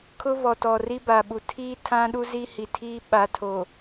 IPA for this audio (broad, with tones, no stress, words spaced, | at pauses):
kʰʊ˦βɔ˨tɔ˨ ri˦ba˨ ɓu˨tʰiː˦tʰã˦ɗu˦ zi˦hi˨tʰiː˦ ɓa˨˦tʰo˨